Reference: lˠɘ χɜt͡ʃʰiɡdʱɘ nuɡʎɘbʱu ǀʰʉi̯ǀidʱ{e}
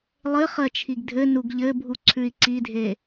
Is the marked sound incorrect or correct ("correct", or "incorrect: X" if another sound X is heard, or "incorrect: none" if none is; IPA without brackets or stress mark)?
correct